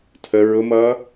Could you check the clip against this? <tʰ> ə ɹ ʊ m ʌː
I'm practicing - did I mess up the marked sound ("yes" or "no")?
no